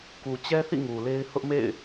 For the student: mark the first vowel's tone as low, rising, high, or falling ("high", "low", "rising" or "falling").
low